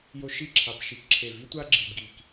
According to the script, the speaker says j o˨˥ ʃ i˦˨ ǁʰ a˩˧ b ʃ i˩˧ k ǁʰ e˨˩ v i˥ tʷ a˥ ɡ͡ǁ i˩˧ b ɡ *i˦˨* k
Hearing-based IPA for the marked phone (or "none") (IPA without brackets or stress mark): i˨˩